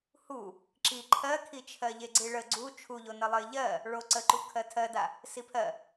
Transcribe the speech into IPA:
h u | ǁ i ǃʰ ɜ kʰ i t͡ʃʰ ɜ ʎ e ɡ͡ǀ i ɭ ə ɡ͡ǀ u t͡ʃʰ u ʎ o n ə lˠ ə ɪ̯ ʎ ɜ | ɭ o ǀ ə ǃ u kʰ ɜ tʰ ɜ d a | s i pʰ ɜ

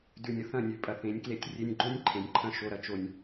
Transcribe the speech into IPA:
d ʉ˨ nʲ ə˨ θ ɐ̃˦˨ nʲ ʉ˨ pʼ ɐ˨ θ ẽ˨˦ nʲ k l e˧ tʲ rʲ e˧ nʲ ɡ͡ǃ õ˦ nʲ ǃʰ ẽ˨ nʲ ǃʰ ɐ̃˧ ʃ o˧ ɾ ɐ˧ t͡ʃ o˧ nʲ

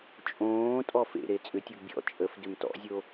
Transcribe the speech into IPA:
t͡ʃʼ õː tʼ ɔ f ḛ ɾ e t͡sʼ ʏ tʲ u ɡ bʲ ɔ̰ t͡ʃʼ ə f d ʏ m t ɔ̰ zʲ o

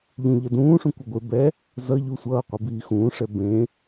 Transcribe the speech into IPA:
ʎ ũ ʎ ʌ d ũː ʂ ũ kʷ ʌ ɡʷ e b ɛ | z ʌ ʎ u sʷ ʌː qʷ i b iː x ũː ʂ ɛ b ẽ

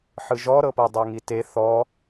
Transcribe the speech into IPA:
ħ ɯ ʒ ɔ ɾ ɤ p ɤ dˤ ɤ ŋ i t e θ ɔ

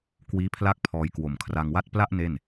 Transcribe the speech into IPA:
k w iː˦˥ pʰ l a˥˩ k̚ pʰ ɔː˧ j k w o˨˩ m kʰ r a˧ ŋ w a˥˩ t̚ p l a˥˩ ʔ n e˥˩ n

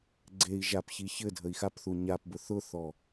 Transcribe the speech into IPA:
ɡ͡ǀ e i̯ ʒ a p ç i ç ɘ dʱ ə i̯ x a p θ u ɲ a p b ʊ θ ʊ θ ɔ

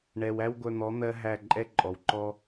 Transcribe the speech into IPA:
ɳ ɛ˨ w æ˦ w ɡʷ œ˧ n̪ ɔ˨˦ n̪ ɜ˦ ɦ æ˦˨ ǃʼ ɛ˦ ǃʼ ɔ˨ w ǃ ɔ˦

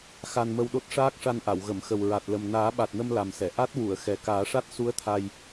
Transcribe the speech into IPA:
x a˧ n m ə˧ w ɗ o˦˥ t̚ ʂ aː˦˥ k̚ ʂ a˧ n ʔ a˨˩˨ w ɣ ə˨˩˨ m x ə˨˩ w ɹ a˨˩ t̚ l ə˨˩ m n aː˨˩˦ ɓ a˨˩ t̚ n ə˧ m l a˨˩ m s ɛ˨˩˨ ʔ a˦˥ t̚ w u˨˩˨ ə̯ x ɛ˨˩ k aː˨˩˦ ʂ a˦˥ t̚ s u˧˥ ə̯ t̪ʰ a˧ j

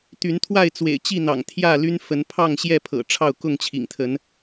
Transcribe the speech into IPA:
t̪ y˨˦ n t̪ʰ w a˥˨ ɪ̯ t͡s w ḛ˨˩ ɪ̯ t͡ɕ i˥˨ n̪ ɑ̰˨˩ ŋ t̪ʰ j ä˥˨ l y˦ n f ə˨˦ n pʰ ɑ˥˨ ŋ ɕ j ɛ˥˨ pʰ ɤ̰˨˩ ʈ͡ʂʰ ɑ˥˨ ʊ̯ k ʊ˥˨ ŋ t͡ɕʰ ḭ˨˩ ŋ t̪ʰ ə˨˦ n

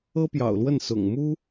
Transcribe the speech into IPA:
ɤ˥ p j ɑ̰˨˩ ʊ̯ l w ə˥˩ n s ʊ̰˨˩ ŋ m u˥

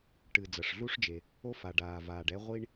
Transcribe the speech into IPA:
ʈ ɨ˩ d͡z ɐ˩ ʂ ɮ u˧ ʂ d͡ʒ e˩ | o˧ f a˩ ɖ aː˩ v aː˩ ɖ ɛ˧ ʁʷ i˧ ɳ

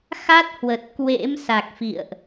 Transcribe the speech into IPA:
x a˦˥ t̚ h w ə˨˩ t̚ k w ḛ˧˥ m s a˨˩ k̚ f ḭ˧˨ ə̯ ʔ

